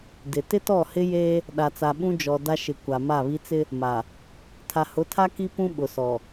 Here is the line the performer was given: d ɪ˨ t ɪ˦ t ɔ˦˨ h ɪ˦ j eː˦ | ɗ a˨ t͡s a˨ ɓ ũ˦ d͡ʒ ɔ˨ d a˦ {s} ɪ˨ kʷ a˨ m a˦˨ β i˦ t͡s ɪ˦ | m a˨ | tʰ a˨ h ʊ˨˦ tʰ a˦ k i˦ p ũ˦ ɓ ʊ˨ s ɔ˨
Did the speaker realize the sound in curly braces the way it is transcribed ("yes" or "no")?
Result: no